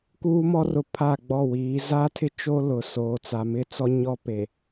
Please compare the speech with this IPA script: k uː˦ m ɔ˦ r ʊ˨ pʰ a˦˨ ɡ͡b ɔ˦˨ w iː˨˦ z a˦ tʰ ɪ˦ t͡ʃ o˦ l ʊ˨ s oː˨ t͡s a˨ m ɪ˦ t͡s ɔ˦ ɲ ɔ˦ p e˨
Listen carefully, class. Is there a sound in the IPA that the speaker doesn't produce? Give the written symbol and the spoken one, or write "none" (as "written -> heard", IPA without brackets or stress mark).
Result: none